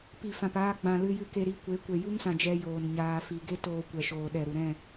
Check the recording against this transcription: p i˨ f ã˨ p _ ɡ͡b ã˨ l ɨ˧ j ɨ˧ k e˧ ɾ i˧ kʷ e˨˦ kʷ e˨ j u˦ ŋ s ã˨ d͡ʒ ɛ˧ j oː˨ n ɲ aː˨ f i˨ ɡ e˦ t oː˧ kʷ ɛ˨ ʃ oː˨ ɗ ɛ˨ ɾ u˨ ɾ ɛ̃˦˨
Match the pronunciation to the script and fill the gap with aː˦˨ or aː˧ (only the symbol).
aː˧